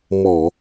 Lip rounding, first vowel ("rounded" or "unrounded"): rounded